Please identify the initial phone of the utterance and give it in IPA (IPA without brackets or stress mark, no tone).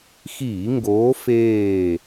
x